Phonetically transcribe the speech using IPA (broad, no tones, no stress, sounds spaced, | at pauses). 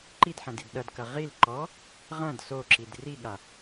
ǃ i d ħ ɐ̃ d i d ɗ ɐ d k ɐ ʁ i l ǃ ɔ | ʁ ɐ̃ d s o ǁ i d r i ɠ a